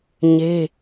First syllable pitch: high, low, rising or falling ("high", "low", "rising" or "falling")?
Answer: high